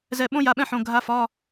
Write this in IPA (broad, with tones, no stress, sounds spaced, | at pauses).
z ɛ˧˩ ɓ õ˥ j a˧˩ ɓ ɛ̃˥˧ ħ õ˩˧˩ ɡʱ a˧˥ f ɒ˧˥˧